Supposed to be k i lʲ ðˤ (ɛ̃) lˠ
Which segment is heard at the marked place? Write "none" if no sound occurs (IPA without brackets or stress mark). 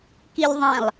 ɛ̃